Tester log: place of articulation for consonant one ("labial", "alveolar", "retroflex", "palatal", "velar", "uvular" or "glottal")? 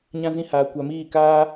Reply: palatal